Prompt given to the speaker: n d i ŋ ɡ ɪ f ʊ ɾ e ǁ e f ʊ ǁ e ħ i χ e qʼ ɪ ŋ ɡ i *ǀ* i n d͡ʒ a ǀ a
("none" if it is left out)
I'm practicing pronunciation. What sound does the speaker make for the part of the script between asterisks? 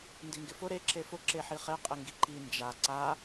ǃ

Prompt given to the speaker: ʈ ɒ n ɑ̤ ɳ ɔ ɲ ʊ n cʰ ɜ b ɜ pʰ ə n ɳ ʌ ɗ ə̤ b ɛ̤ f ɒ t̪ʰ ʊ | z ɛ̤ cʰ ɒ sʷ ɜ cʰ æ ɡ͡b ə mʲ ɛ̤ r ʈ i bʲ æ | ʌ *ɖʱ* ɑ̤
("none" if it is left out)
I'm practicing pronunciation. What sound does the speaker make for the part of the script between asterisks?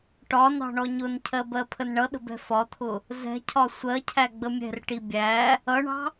ɳ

